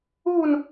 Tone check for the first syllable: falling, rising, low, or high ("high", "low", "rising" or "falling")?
falling